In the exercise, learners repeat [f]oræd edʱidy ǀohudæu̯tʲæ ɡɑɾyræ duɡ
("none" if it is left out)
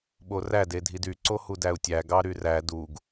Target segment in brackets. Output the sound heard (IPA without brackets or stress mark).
ɓ